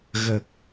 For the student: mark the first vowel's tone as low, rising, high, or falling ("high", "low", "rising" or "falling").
low